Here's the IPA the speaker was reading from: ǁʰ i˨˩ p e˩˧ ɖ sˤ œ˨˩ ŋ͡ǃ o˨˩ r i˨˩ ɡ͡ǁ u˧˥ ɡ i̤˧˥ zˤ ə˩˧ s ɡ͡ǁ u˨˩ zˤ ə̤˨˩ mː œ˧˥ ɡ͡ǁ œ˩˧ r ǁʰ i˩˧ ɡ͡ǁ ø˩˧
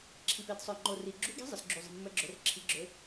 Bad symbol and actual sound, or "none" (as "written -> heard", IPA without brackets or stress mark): ɖ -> d